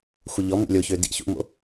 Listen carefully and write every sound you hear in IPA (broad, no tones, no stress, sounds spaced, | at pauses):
xʷ ə ʎ ɔ m ṵ lʲ o ç ø d ḭ ç ṵ m o̰